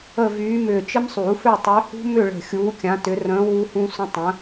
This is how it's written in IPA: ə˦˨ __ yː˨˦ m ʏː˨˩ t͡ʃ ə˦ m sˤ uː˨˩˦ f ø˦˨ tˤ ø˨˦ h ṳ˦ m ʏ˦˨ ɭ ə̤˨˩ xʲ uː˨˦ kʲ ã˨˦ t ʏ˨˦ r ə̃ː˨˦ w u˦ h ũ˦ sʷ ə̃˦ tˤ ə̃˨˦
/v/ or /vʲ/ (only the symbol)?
v